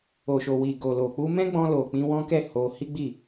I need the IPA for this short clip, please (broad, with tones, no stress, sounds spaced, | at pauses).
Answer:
o˨ ʃ o˨ w i˨ ɡ o˨ l o˨ k͡p u˧ m ɛ̃˦ ɡ͡b ɔ̃˧ l o˨ k͡p ĩ˧ w ɔ̃˦ k ɛ˦˨ h o˧ h i˦ ɡ͡b i˦˨